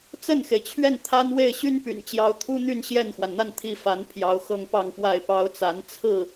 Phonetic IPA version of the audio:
t͡sə˥˩nxe˩ɪ̯t͡ɕʰɥɛ˥˩n t̪ʰa˥nwe˥˩ɪ̯ ɕy˥npy̰˨˩nt͡ɕjɑ˧˥ʊ̯ t̪ʰu˥n̪y˥˧n ɕjɛ˥˩nxwa˩nn̪a˥˧n t̪ʰi˥˩ fa˧˥npʰjɑ˧˥ʊ̯xɤ˥˧ŋ pɑ˥˧ŋpwa˥˩ɪ̯pɑ˥ʊ̯t͡sa˧˥n t͡sʰɹ̩˥˩

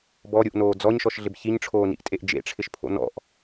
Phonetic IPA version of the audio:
bɔɾʲuʔnoː d͡zɔɲʃɔʃɮɪb çiɲʈ͡ʂʰoːnḭʔtʼeʔ d͡ʒḛʈ͡ʂʰɪʃpʰo̰ nɔ̰ʔ

